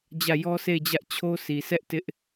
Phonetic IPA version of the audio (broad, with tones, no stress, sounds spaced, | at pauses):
d͡ʑ ä˦˨ j ɔ˦ sʰ e˦˨ ɪ̯ d͡ʑ ä˦ ʔ t͡ɕʰ o˦ sʰ i˨ sʰ ɛ˦ ʔ t ɪ˦ ʔ